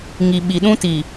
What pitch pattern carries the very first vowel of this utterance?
low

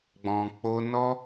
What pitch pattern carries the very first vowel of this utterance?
low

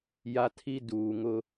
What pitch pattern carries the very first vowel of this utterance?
high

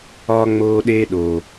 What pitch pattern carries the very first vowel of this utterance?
high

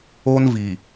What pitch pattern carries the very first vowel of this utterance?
high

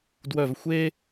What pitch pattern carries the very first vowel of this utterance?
low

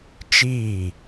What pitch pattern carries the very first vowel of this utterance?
falling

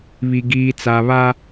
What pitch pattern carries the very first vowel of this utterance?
low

